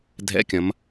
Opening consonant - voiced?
yes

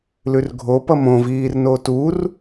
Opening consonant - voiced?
yes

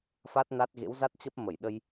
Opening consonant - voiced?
no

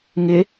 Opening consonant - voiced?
yes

